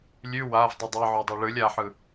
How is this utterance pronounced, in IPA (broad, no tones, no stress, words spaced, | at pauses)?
lʲʉ wav dˤɯdˤɛ ʕodˤɛɭɯlʲ aħɯ